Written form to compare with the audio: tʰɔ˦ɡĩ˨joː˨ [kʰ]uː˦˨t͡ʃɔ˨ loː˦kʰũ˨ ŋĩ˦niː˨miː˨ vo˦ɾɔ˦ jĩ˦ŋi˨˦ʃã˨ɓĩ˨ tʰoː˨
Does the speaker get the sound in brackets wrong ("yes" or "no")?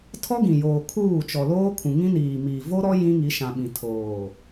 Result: no